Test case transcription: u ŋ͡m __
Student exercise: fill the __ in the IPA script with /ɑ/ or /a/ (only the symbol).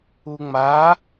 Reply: a